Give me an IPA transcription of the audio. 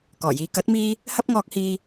kɔː˨˩jiː˨ kɐ˨˥t̚miː˧ | hɐ˥p̚ŋɔː˧k̚hiː˧

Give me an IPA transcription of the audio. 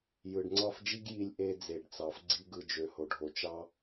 jɯ˨ɖŋ͡ǀɑ˦˨fd͡ʒi˦ɡ ji˧lʲ ʔe˧ d͡ze˨ɖt͡sɑ˨f ɡ͡ǀi˧ɡɯ˨d͡ʒø˨ ho˨ɖʱo˨ t͡ʃɑ˦

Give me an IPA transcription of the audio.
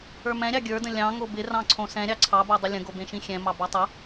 ə˞mɛ̃ɾʲɑ ɡʲə˞də̃ lʲɑ̃ ŋobɪ rɑ̃ǀʰõsɛ̃ ɾʲɑǀʰɑbodˤɪ lʲə̃ɡobẽʃĩ xʲɛ̃mɑ bɑtˤə

